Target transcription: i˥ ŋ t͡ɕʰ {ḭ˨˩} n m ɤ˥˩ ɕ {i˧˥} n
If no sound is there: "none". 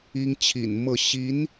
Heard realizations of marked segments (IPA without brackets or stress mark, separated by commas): ḭ˨˩, i˧˥